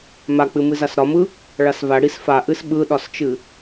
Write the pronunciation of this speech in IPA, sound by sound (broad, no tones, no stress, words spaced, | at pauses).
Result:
mak͡pɨ mɨzasɾɒmɯ | ɭasva ɽisfaʔɨs ɓɯɗɒst͡ʃɨ